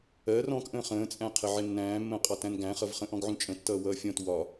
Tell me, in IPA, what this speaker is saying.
ɜ r ɔ̃ k ʔ ə̃ː χ ə̃ː t͡sʼ æ̃ qʰ ə ʕ ɪ nː æ̃ː mː ə̃ː qʼ ɑ t æ̃ n ɡ æ̃ χ ʌ v χ ə̃ ʔ ɔ̃ ɡ ʕ ũ t͡ʃʼ ə̃ tː ʌː w ʌː fʲ ɔ̃ t w ɒ

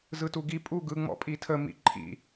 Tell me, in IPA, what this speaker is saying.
z ɯ t u ɡ i pʼ u ɡ ɯ ŋ͡m ɔ̰ pʼ i tʰ ə m ḭ ǃʰ ḭ

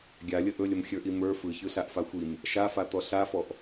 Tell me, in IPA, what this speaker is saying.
ɡʲ a lʲ ə ʔ ɵ lʲ ə m xʲ ə˞ ʔ i m ə˞ f ɯ ç ɯ ɬ a ʔ f a xʷ i m | ʃ a f a t̪ ɔ ɬ a f ɔ ʔ

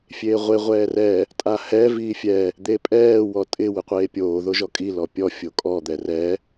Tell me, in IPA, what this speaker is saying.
fʲ eː ʁʷ e ʁʷ ɛː r ɛ | tʼ a h ɛ v iː fʲ ɛ | d̪ e pʼ ɛː w ɔ tʼ ɪ w ɪ qʷ eː pʲ oː ð o ʒ ɔ kʼ i l ɔ pʲ ɔ fʲ o kʼ ɔ d̪ ɛ r ɛ

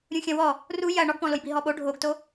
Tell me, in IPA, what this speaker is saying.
ɾʲ ũ xʲ ɐ̃ w ɔ | r u j ɐ ɳ ɔ ɡ p ɔ̃ l o j b i ɦ ɔ ɓ o ɖʱ o ɡ t o

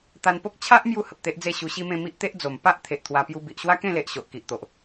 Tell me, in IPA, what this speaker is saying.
t̪ a˧ n p o˦ k̚ t͡ɕʰ a˦ ʔ m j u˥˧ h ə˨ p̚ t̪ e˦ ʔ d͡z e˥˧ ɕ u˧ ɕ i˦ m ẽ˥˧ m i˦ ʔ t̪ e˦ ʔ d͡z o˨˩ m p a˦ ʔ t̪ʰ e˨ ʔ t̪ʰ w a˧ p j u˧ b i˨ ʔ ɕ w a˦ k ẽ˥˧ l e˨ ʔ ɕ o˨ ʔ k i˨ ʔ t̪ o˨ ʔ

